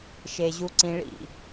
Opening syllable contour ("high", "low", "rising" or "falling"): low